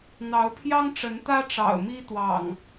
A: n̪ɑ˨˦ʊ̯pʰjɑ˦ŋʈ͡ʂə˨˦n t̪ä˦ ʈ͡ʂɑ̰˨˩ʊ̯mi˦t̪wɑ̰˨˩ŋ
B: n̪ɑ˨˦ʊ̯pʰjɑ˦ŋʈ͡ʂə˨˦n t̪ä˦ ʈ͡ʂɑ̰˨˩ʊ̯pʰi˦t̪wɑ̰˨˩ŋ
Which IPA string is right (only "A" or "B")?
A